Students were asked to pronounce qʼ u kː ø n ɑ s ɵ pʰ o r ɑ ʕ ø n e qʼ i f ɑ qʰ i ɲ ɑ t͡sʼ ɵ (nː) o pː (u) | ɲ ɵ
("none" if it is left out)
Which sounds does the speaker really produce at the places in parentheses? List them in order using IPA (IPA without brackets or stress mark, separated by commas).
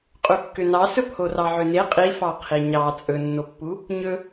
nː, u